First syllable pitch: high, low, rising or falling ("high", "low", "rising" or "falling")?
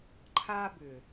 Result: high